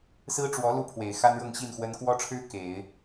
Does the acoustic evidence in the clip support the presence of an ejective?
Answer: no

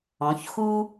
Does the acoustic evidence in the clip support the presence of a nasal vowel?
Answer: yes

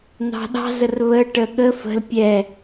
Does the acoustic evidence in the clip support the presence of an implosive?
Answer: yes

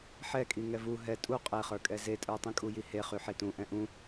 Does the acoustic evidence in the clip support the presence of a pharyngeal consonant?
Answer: yes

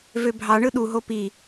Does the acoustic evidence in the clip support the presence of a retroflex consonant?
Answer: yes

